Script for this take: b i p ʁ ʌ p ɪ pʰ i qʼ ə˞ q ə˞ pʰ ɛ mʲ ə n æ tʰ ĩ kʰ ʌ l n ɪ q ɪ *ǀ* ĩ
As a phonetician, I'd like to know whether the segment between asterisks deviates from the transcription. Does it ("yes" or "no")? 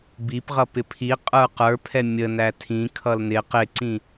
no